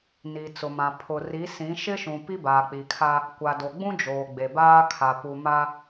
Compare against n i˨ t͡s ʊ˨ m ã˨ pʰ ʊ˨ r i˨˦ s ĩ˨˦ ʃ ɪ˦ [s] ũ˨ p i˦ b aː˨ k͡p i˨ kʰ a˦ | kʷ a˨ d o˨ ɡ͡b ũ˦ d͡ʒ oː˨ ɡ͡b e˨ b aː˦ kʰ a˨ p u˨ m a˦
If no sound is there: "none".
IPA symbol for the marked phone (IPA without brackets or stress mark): ʃ